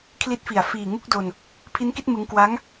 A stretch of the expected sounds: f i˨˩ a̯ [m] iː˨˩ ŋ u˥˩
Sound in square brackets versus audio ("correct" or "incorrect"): incorrect